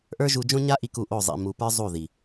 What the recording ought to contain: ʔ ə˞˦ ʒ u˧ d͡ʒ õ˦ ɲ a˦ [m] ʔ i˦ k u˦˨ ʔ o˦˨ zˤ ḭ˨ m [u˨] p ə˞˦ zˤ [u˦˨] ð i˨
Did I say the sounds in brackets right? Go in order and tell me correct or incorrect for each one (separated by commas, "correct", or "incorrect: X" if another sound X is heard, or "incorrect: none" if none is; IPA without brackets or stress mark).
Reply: incorrect: none, correct, correct